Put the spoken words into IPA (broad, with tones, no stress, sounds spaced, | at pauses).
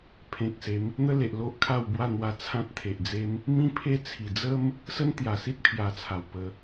pʰ ẽ˨ k̚ s e˨˦ m | n̪ ə˦ l e˨ ʔ l o˦ ʔ kʰ a˥˧ w b w a˥˧ n̪ w a˧ t͡sʰ ã˦ t̚ t̪ʰ e˨ ʔ d͡z e˦ m | m ĩ˦ pʰ e˦ t͡sʰ i˨˩ d͡z ə˦ m | s ə˦ n t̪ j a˨˩ s i˦ t̚ pʰ j a˧ t͡sʰ a˨˩ w p ə˧